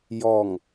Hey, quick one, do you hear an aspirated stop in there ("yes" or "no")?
no